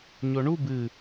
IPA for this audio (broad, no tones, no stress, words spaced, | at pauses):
ɲoɳu bɨ